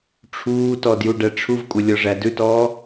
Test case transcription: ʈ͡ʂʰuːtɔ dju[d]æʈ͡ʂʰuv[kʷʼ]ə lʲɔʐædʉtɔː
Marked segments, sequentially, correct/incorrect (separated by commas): incorrect, correct